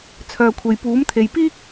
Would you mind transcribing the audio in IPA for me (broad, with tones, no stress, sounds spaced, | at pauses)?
t͡sʰ œː˨ kʷʰ e˨ j p uː˨˥ m t̪ʰ e˨ j p iː˥ k̚